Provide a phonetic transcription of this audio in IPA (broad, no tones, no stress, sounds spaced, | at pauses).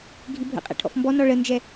ɡʱ i bʱ ə̰ qʼ ɛ̰ ʈʰ ɔ̰ f m b ɔ n ɔ ɭ ə n d͡ʒ ɛ